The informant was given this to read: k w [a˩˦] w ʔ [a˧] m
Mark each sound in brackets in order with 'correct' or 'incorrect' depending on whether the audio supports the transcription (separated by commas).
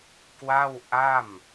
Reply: incorrect, incorrect